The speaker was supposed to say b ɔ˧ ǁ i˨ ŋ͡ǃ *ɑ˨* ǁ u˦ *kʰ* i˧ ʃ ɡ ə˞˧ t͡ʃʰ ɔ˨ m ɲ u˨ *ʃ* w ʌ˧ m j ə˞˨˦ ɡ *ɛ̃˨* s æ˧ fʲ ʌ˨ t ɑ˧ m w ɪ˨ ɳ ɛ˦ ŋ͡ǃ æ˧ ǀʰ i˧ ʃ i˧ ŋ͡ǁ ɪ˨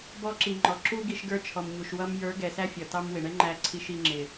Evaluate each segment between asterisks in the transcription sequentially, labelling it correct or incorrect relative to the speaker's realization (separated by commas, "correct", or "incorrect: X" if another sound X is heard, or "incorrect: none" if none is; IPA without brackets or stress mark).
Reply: incorrect: ɔ˨, incorrect: ɡ, correct, incorrect: ɛ˨